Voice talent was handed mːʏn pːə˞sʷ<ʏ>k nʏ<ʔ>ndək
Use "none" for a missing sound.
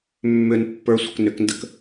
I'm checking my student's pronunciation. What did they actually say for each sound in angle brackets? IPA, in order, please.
ə, k

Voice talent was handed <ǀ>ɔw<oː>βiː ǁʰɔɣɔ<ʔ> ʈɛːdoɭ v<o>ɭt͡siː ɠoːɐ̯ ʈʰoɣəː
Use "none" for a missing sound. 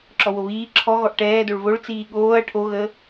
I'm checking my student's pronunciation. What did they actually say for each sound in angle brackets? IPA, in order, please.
ǁ, o, ʔ, o

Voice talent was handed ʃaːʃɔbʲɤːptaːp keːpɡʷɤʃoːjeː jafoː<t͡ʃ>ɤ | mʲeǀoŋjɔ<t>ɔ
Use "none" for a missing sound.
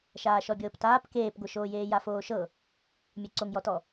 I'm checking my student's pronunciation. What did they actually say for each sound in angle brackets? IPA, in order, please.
ʃ, t

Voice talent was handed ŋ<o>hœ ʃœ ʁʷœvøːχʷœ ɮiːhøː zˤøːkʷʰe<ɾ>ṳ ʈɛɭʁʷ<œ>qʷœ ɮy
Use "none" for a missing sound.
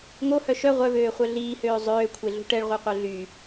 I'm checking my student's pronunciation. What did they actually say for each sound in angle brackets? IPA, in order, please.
o, ɮ, œ

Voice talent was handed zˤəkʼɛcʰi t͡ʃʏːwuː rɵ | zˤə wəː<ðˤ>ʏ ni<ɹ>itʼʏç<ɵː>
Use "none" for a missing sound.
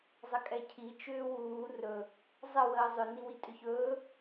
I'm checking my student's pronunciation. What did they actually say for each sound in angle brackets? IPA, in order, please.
zˤ, w, ɵː

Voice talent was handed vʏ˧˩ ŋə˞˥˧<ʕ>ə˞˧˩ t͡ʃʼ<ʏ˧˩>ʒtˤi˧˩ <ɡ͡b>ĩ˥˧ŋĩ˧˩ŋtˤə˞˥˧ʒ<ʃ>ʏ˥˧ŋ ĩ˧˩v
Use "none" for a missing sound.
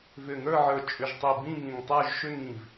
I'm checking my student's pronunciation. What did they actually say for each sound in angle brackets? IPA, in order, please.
ʕ, ʏ˧˩, b, ʃ

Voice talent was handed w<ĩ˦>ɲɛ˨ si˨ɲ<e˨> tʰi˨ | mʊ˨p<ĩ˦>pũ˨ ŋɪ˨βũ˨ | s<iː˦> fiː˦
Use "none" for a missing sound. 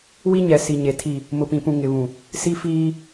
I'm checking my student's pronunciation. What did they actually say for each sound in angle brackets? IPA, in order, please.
i˦, e˨, ĩ˨, i˦

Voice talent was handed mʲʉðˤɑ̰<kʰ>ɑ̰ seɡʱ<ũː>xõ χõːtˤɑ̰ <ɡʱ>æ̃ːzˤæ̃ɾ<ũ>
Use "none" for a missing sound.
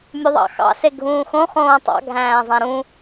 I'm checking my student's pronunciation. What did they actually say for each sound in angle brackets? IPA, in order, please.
x, ũː, ɡʱ, ũ

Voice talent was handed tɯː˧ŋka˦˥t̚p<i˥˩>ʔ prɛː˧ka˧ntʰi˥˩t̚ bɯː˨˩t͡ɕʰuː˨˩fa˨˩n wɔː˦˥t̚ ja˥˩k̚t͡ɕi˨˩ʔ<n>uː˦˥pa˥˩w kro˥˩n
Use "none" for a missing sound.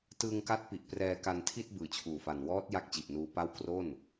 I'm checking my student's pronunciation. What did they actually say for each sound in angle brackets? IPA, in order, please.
i˨˩, n

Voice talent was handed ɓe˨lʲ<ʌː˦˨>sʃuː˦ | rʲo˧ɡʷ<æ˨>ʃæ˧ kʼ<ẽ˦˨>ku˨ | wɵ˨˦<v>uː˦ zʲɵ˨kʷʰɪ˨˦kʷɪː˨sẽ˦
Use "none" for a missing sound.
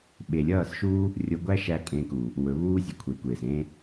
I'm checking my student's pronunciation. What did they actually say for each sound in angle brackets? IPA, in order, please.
ʌː˦˨, æ˦, ẽ˧, β

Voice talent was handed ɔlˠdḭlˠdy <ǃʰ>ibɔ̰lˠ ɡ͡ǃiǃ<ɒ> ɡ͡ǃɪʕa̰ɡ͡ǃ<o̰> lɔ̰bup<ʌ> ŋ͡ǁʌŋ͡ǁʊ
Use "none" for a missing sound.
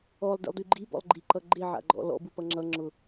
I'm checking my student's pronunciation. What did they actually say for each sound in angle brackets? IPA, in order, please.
ɡ͡ǃ, ʌ, ɔ̰, ʌ

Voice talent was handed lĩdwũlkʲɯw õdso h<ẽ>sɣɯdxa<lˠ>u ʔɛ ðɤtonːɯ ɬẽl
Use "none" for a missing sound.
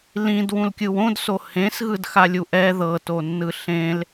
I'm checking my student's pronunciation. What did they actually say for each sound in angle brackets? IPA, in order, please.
ẽ, lʲ

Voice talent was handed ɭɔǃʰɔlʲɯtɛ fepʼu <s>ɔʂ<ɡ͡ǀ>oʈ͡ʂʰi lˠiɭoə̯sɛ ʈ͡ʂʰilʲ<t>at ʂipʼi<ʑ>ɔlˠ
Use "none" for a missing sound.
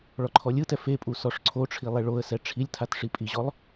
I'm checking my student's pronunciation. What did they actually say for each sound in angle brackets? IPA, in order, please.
s, ǀʰ, tʰ, ʑ

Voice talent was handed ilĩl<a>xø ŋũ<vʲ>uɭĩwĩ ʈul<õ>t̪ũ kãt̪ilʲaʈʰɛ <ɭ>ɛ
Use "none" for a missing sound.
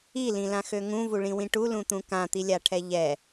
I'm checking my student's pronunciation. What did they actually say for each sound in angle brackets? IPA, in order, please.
ã, v, ũ, ʎ

